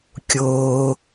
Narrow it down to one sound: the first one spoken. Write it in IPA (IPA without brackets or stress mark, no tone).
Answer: kʲ